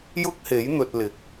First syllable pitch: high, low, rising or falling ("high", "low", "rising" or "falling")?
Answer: high